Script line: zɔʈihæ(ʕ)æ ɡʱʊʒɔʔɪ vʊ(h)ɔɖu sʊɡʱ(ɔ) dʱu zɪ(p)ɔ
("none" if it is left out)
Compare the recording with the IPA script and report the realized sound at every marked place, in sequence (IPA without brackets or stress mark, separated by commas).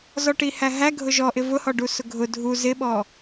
ɦ, h, ʊ, ɓ